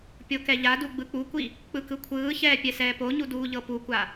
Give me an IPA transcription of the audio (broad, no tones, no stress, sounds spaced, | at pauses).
pʲ o k ɛ ʎ a d u ɡ͡b ɯ k͡p u kʷ i | k͡p ɯ k ɯ kʷʰ ɯː ç ɛː pʲ ɛ s ɛː p o ɲ u d uː ʎ ɤ p u kʷ a